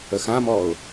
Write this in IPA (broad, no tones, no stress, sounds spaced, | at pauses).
ə x ã m ɔ ʊ̯